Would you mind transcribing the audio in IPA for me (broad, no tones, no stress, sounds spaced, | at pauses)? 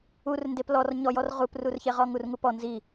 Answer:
u r n d e p l ɔ r ɲ ɔ j ɔ r ʁ u p r u r ç e ʁ ɔ ŋ u r ŋ u p ɔ n z i